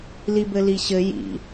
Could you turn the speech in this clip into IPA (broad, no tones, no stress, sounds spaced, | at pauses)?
l i b ɘ l i ɕ ɘ j ḭ